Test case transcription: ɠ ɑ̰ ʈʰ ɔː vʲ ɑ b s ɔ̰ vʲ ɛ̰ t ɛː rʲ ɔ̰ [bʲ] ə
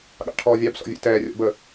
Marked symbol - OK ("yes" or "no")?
no